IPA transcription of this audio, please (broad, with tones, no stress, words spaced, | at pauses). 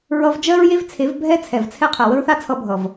ɹʌ˧vd͡ʒɜ˦ɹje˦v t͡sʰe˨˦vbʱɛ˦ t͡sʰɛ˨vt͡sʰɛ˦qʰɜ˨ wə˦ɹθa˦t͡sʰʌ˧ bʱʌ˨v